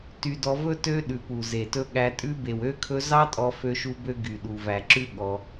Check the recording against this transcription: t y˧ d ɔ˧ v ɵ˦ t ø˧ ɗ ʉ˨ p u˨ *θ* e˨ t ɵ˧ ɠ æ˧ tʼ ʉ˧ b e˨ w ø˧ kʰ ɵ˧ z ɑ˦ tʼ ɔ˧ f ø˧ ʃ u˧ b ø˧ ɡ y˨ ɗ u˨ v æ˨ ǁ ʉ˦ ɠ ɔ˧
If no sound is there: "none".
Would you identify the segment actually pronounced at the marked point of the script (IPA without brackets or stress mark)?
z